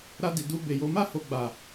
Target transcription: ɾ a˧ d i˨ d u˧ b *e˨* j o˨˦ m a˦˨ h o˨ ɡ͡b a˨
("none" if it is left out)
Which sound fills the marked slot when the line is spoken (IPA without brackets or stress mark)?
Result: e˨